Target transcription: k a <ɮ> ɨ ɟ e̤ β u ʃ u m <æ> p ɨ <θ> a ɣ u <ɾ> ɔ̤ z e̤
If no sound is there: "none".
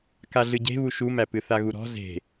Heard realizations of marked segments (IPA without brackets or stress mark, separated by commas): ɮ, æ, θ, ɾ